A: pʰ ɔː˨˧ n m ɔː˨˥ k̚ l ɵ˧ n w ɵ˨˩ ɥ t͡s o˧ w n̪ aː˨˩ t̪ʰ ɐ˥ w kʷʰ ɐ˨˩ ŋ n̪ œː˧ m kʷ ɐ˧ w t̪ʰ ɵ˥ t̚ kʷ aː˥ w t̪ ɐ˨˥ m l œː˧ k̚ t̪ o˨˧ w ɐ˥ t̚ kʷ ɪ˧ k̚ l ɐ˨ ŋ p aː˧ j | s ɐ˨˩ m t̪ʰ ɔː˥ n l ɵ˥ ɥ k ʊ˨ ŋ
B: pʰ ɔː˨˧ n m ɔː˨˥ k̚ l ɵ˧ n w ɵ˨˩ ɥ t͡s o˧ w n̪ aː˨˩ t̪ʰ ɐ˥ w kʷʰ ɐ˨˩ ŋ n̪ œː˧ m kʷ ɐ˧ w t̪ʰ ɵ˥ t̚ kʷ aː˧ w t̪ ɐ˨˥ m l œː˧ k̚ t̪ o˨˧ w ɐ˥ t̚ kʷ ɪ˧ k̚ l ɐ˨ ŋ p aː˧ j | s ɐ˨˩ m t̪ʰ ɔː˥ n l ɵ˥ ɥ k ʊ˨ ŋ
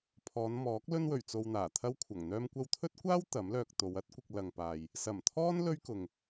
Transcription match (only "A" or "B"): A